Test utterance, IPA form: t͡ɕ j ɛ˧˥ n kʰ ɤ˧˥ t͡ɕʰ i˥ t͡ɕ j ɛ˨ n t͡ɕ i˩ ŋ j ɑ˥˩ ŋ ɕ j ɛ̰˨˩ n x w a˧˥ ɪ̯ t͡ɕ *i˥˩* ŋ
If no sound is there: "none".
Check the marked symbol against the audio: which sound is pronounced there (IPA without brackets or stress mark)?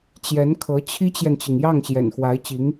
i˧˥